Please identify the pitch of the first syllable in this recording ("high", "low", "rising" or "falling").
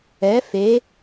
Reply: rising